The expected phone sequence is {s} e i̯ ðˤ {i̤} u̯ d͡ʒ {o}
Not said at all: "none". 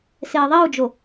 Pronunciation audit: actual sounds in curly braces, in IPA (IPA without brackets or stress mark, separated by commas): s, i, o